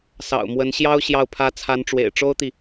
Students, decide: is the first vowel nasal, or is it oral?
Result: oral